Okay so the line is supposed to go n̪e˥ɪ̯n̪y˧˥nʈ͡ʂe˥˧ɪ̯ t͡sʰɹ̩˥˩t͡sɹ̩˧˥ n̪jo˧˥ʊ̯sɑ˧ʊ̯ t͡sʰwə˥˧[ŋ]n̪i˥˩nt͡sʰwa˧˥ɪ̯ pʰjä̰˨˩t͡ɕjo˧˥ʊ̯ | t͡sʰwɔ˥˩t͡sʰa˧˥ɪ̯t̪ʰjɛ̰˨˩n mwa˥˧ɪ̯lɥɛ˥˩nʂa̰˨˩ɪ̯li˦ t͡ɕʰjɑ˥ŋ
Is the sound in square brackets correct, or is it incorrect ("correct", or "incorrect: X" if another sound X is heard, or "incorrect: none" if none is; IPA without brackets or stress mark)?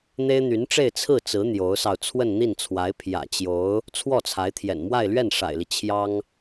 incorrect: n